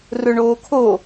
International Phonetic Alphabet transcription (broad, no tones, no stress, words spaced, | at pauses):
rɵɳoːkʰo